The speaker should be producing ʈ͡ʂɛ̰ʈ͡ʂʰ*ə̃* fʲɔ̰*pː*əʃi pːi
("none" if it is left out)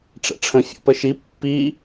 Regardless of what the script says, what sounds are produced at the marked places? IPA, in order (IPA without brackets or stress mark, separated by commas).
ə̃, p